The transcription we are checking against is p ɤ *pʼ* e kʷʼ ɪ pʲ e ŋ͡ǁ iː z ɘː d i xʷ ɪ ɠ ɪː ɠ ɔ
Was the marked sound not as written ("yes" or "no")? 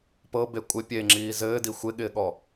yes